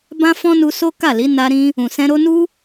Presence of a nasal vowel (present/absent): present